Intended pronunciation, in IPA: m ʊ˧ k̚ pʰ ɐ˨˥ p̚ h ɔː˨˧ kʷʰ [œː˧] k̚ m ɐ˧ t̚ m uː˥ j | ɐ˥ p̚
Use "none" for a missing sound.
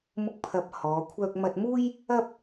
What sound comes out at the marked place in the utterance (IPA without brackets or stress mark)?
œː˧